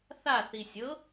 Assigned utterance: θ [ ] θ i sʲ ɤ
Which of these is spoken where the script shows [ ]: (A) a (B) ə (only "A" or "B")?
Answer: A